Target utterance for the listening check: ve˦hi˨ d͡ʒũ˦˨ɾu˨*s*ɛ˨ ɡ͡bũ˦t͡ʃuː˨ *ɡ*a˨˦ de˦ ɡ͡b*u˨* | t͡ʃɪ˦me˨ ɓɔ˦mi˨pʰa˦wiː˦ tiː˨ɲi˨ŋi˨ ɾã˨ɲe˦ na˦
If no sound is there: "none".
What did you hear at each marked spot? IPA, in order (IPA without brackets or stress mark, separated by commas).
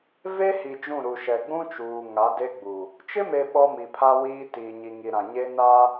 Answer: ʃ, ŋ, u˨